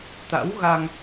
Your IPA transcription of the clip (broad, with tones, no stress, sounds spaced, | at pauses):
t̪ a̰˧˥ w ɣ a˧ ŋ